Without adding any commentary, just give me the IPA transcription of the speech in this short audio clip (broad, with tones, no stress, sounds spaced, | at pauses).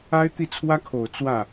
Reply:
a˥ ɪ̯ t̪ i˥˩ t͡sʰ w ä˥ kʰ o˨˩ ʊ̯ t͡s w ä˥˩